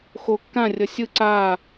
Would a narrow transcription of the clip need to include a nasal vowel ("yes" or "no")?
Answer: yes